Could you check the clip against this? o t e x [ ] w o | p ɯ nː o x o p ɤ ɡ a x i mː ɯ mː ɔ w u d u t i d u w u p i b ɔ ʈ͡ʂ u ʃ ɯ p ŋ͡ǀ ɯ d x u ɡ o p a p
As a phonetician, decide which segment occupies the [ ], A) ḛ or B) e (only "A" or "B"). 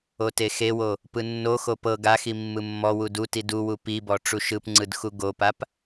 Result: B